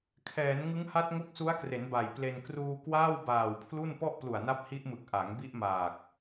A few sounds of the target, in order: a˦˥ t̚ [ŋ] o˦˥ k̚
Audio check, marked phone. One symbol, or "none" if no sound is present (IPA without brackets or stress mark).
ŋ